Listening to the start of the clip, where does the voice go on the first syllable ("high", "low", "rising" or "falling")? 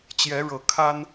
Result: rising